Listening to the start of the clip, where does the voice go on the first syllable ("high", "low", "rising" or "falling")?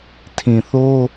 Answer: low